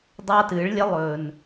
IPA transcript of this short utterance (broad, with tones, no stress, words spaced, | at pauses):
dˤa˦tɨː˨˦ɭ lʲɐ˦lˠɵː˨n